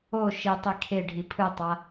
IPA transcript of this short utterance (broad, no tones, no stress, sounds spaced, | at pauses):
o ʃ i tˤ i kʰ e ɖʱ i pʰ ɯ tˤ a